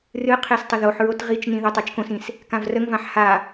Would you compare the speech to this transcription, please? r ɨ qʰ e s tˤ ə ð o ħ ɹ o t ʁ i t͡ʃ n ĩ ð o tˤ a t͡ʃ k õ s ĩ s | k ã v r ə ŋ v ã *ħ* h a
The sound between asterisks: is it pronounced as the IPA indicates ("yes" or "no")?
yes